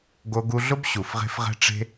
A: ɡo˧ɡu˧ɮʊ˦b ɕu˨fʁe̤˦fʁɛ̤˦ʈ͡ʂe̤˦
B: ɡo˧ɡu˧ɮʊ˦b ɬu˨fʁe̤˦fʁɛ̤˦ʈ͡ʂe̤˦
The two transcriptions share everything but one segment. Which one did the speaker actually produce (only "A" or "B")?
A